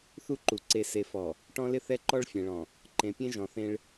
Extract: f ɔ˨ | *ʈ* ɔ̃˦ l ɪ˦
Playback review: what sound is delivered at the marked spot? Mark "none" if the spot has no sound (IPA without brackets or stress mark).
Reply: ʈ